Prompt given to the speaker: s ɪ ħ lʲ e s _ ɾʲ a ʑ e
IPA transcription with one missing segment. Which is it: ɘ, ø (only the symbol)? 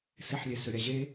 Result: ø